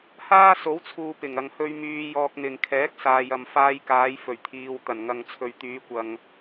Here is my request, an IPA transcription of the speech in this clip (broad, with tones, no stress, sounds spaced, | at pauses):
h aː˥ s o˨˥ w t͡sʰ uː˨ p ɪ˨˩ ŋ ɐ˨ ŋ h ɵ˧ ɥ m yː˧ j ɔː˧ k̚ n̪ ɪ˨ ŋ kʰ ɛː˨˥ k̚ s aː˨ j ɐ˨ m f aː˧ j k aː˨˧ j f ɵ˨˩ ɥ t̪ʰ iː˨ w t̪ ɐ˨˩ n ŋ ɐ˨ ŋ t͡sʰ ɵ˨ ɥ t̪ yː˨˧ kʷ ɐ˨ ŋ